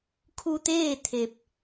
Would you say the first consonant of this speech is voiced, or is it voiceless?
voiceless